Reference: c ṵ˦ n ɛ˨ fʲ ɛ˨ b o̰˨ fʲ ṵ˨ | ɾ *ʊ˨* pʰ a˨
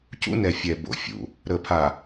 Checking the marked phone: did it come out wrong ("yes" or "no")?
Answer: yes